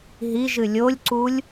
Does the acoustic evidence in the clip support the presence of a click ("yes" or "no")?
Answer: yes